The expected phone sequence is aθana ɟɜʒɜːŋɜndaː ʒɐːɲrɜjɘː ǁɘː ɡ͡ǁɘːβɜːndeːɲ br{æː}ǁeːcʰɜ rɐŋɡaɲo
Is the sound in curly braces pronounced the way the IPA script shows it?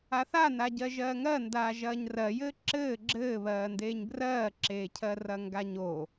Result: no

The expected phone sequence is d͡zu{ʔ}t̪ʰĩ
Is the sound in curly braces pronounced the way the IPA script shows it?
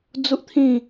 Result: yes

